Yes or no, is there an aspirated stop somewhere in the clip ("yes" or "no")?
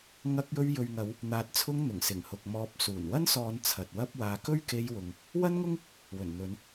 yes